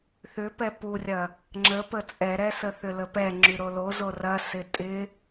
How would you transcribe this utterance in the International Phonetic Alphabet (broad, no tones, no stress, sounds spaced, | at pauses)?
θ ʏ p ɛ p u rʲ ɐ | ŋ͡ǁ ə p ə t͡sʼ ɛ ɾ ɛ s ə θ ʏ l ə p ɛ ŋ͡ǁ y ɾ o l o z o r ɐ s ɪ tʼ ɪ